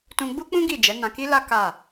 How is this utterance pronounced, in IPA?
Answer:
t ũ˧ ɡ͡b u˦ k͡p ũ˦ ɡ i˦˨ d͡ʒ ɛ˨˦ n ã˧ k i˦ l a˦ k a˦˨

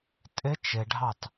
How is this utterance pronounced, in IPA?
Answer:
tʼ ɪ t͡ʃ ɪ ɖʱ ɑ t

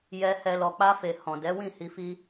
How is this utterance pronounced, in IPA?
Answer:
j ɛ˨ h ɛ˨ l ɔ˨ k͡p a˧ f e˨ h ɔ̃˨ d ɛ˨˦ w ĩ˦˨ h i˧ f i˦

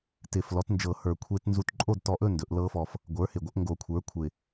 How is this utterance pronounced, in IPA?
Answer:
t ɪ˨˩ f l ɔ˩˥ t n d͡ʒ ɤ˨˩˦ h ə˞˨˩˦ kʷʰ e˦˥ t n z u˥˨ t ǃʼ o˥˨ d t ɔ˧ ʔ ɵ˥˨ n d ɵ˨˩˦ ʔ l ɤ˦˥ f ɔ˧ f | ɡʷ ə˞˩˥ h ɪ˨˩ ɡʷ ə˩˥ ʔ ŋ ɡ o˨˩˦ kʷʰ ə˞˩˥ kʷʰ ɪ˨˩

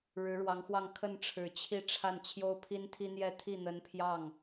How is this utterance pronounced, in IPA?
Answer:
ɻ ɻ̩˧˥ ɻ w ɑ˧˥ ŋ x w ɑ˥˧ ŋ kʰ ə˥˩ n ʈ͡ʂʰ ɻ̩˨˩ t͡ɕʰ i˥˧ ʈ͡ʂʰ a˥˩ n t͡ɕʰ j o˥ ʊ̯ pʰ i˥ n t̪ʰ i˥ n̪ j ɛ˥ t̪ʰ i˥˩ n̪ ə˧˥ n pʰ j ɑ˥˩ ŋ

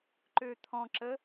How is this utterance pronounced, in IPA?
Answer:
ǃ ø t̪ʰ ɔ̃ ǁ ə

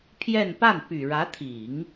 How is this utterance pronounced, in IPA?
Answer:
pʰ j ɛ˥˧ n p a˥˩ n p y˨˩ ɻ ä˧˥ t̪ʰ i˨˩˦ ŋ

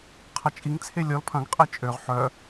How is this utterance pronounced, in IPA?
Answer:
qʰ ɐ t͡ʃʼ i ŋ t͡sʰ e lʲ ɔ l pʰ ɐ̃ ɡ qʼ e t͡ʃʼ ø ʁ ħ œ

